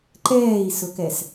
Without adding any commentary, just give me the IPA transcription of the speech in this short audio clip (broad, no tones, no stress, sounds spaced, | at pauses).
ǃ ɛː i̯ s ʊ k ɛ s